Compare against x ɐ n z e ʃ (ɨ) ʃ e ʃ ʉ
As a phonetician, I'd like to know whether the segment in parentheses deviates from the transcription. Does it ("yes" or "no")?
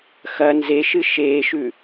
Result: no